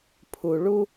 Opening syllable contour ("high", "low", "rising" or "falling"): low